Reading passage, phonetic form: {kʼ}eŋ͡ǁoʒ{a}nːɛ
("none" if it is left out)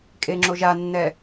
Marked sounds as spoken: kʼ, a

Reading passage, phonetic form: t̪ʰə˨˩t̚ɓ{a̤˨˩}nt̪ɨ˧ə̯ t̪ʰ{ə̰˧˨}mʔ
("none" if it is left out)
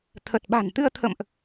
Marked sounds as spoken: a̤˨˩, ə̰˧˨

